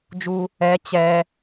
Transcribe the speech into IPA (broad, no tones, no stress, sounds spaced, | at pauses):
d͡ʒ u | ɛ t͡ɕ ɛ